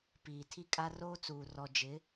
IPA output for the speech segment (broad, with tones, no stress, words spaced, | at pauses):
piː˨tʰi˦kʼa˦ roː˦t͡suː˨ rɔ˨d͡ʒɪ˨˦